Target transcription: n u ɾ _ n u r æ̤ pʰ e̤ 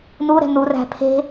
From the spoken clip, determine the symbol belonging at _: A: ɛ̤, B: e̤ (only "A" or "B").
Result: A